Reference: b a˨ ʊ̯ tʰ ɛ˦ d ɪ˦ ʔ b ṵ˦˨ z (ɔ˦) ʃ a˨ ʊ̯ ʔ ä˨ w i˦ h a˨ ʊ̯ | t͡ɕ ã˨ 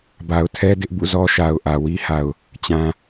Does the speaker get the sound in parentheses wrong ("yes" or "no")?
no